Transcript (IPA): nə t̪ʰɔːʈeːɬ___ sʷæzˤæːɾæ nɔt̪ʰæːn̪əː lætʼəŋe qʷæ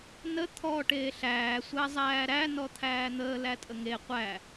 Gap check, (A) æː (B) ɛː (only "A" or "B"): A